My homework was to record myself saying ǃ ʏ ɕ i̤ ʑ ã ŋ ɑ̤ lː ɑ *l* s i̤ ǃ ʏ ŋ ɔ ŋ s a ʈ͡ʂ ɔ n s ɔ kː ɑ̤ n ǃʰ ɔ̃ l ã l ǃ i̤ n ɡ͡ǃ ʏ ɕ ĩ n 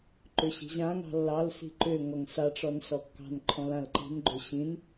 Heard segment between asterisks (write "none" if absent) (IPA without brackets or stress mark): l